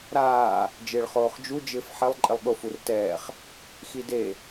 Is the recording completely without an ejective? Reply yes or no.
no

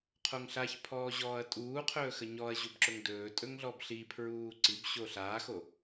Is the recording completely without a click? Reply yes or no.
no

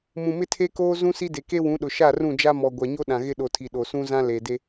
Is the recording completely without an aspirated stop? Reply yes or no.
no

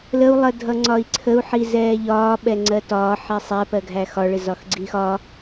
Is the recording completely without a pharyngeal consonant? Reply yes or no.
no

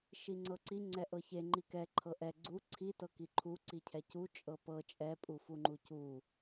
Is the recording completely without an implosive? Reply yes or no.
yes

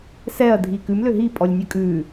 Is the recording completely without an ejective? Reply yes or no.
no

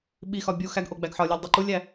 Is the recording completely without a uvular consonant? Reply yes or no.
yes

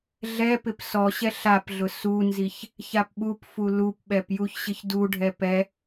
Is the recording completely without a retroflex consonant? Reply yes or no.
no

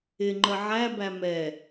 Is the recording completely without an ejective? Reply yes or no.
yes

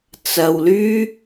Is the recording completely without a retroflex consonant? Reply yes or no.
yes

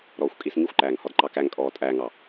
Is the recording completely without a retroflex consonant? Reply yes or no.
yes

